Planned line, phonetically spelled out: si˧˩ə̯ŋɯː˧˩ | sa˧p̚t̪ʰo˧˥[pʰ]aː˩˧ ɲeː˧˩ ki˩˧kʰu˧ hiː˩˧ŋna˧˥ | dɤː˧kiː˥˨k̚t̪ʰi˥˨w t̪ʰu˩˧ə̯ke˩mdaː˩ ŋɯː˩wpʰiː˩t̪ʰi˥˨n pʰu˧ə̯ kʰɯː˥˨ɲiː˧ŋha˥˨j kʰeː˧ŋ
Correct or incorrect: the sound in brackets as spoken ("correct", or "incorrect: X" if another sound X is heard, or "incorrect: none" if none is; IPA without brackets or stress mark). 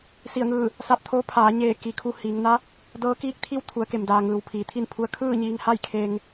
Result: correct